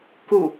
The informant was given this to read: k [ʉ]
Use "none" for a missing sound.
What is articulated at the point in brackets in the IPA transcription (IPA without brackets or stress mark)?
u